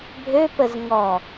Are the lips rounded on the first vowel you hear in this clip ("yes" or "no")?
yes